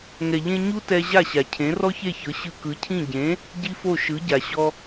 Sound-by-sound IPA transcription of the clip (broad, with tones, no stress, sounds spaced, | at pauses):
ŋ ɛ˩ ʎ ẽ˧ ɲ u˥ t ɛ˧ ʑ a˥˩ ɕ a˩ cʰ ẽ˩˥ r ɔ˥ ç e˥˩ ç ɤ˩˥ ɕ ɯ˧ k ɯ˩˥ cʰ ĩ˥˩ ɟ ẽ˩˥ | ɟ i˥ f o˥˩ ʃ ɯ˩˥ ɟ a˩ ɕ ɔ˧